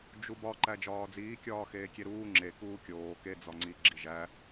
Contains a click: yes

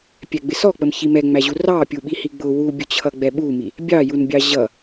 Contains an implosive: yes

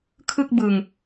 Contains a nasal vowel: no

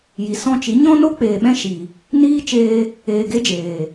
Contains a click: no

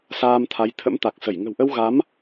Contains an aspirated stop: yes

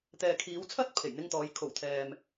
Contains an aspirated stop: yes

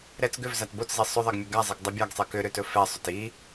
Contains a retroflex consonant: no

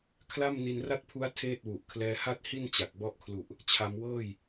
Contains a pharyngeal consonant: no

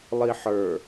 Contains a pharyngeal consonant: yes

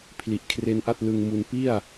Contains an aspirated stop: yes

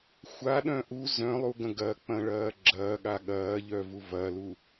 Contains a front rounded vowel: yes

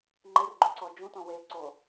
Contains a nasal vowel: yes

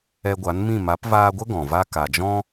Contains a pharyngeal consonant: no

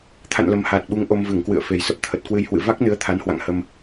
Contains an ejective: no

